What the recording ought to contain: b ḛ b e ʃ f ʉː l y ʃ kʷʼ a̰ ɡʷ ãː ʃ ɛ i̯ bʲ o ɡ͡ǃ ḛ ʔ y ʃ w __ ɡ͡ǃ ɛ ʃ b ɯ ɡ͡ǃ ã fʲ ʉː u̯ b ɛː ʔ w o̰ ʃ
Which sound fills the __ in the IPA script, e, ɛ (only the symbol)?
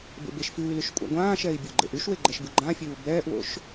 e